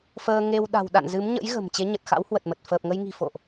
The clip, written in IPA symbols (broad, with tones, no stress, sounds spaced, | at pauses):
f əː˧ ŋ e˧ w ɗ a̤˨˩ w ɗ a̰˧˨ n z ɨ˨˦ m ɲ ə̰˧˥ j ɣ ə̤˨˩ m t͡ɕ e˨˦ ɲ ə˨˩ t̚ x a̰˧˥ w h w ə˨˩ t̚ m ə˨˩ t̚ f əː˨˩ p̚ ŋ ə˧ j ŋ i̤˨˩ f o̰˧˨ ʔ